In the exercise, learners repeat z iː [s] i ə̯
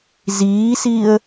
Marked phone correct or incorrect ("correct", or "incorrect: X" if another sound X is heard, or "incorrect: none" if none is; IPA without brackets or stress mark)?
correct